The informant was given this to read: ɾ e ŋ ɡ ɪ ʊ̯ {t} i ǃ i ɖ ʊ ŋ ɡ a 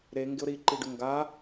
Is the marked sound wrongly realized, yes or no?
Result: yes